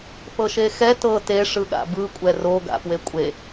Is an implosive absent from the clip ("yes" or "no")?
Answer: no